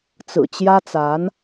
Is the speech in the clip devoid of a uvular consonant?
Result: yes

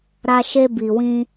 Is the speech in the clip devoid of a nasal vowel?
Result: no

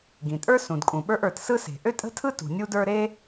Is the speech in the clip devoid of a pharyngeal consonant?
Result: yes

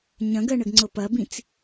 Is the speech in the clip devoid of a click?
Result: no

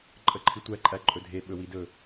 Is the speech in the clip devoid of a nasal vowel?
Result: yes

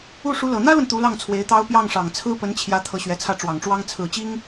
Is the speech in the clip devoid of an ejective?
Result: yes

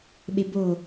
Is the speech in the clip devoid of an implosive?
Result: no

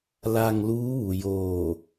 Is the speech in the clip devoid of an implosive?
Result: yes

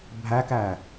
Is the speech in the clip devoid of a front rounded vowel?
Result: yes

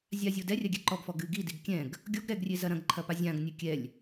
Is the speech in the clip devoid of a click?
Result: no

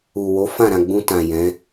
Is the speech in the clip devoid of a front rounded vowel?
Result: yes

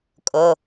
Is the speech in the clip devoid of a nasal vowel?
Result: yes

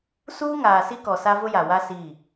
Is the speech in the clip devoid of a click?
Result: yes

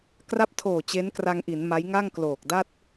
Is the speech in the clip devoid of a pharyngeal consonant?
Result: yes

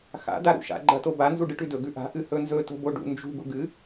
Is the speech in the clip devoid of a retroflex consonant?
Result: no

